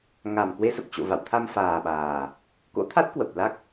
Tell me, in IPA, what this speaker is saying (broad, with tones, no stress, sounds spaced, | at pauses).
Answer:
ŋ a˨˩ m k w e˧ s ə˨˩ p̚ t͡ɕ o̰˧˨ v a̰˧˨ w t̪ʰ a˧ m f aː˨˩ ɓ aː˨˩ | k o̰˧˥ t̪ʰ a˦˥ t̚ k w ə˨˩ p̚ l a˦˥ k̚